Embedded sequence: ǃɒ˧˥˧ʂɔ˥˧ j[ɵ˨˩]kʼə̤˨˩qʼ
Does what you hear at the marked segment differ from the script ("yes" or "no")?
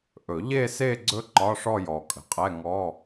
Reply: yes